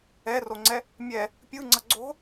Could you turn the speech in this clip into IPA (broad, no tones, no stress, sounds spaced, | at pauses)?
ɛ r o ŋ͡ǀ ɛ | mʲ ɛ | pʲ ɯ ŋ͡ǀ ʌ ɡ͡ǀ o̤